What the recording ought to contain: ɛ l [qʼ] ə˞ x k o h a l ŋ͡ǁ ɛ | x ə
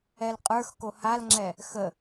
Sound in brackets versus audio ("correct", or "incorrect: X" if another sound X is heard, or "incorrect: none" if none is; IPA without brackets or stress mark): correct